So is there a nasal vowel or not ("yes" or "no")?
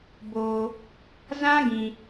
yes